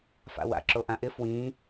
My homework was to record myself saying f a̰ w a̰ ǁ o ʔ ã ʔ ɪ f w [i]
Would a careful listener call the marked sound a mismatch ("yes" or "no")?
yes